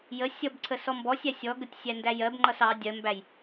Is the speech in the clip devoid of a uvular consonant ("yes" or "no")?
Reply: yes